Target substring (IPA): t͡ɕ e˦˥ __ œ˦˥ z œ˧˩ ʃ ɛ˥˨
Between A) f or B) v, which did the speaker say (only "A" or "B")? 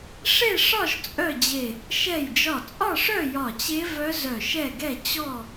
B